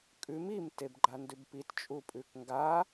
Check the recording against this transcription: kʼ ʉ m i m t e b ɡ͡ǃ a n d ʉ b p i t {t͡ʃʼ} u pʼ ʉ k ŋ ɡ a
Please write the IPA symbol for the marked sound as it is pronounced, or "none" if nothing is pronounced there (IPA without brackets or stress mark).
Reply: t͡ʃʼ